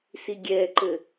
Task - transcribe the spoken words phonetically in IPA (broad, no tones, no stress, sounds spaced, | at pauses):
s i ɡʲ ɛ ǃ ɘ